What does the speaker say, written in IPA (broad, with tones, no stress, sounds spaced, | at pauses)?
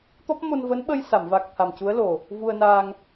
t̪ ɔ˦˥ p̚ m o˧ n v əː˧˥ n ɓ ə˧ j s a˨˩˨ m v a˨˩ k̚ t̪ʰ a˨˩ m c u˧˥ ə̯ l o˨˩ | v u˧ ə̯ n aː˧ ŋ